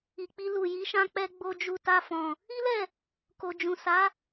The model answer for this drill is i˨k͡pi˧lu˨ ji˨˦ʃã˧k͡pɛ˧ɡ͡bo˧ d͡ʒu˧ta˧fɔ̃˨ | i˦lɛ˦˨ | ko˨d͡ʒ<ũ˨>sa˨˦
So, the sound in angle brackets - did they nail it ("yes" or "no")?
yes